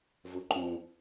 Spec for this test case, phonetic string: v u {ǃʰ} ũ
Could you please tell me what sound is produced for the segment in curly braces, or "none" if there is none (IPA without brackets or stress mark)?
ǃ